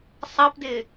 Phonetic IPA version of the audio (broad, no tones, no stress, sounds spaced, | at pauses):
sˤ ɑ p d ɪ